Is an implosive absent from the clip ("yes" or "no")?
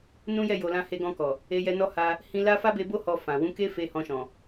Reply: yes